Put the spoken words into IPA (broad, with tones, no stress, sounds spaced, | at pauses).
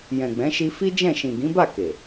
j ɛ̃˨ ɡ͡b ɛ̃˨˦ ʃ i˧ f i˦ d͡ʒ ɛ̃˦˨ ʃ ĩ˨ ɡ ĩ˨˦ b a˦˨ k e˨